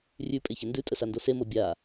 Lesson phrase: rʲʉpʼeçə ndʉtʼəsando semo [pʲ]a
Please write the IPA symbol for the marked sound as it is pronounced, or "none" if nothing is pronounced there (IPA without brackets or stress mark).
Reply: bʲ